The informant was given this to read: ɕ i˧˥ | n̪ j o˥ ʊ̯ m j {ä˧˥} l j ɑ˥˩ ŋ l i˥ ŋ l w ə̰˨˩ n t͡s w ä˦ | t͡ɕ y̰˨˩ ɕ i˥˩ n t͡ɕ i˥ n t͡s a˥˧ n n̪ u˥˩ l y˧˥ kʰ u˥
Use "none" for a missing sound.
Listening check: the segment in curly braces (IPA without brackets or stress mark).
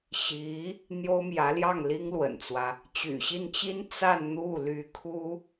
ä˧˥